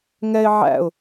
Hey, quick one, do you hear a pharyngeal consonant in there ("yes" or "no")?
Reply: yes